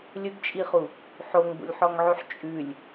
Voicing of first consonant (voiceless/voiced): voiced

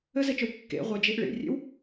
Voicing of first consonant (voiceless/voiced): voiced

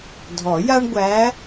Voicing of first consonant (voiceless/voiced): voiced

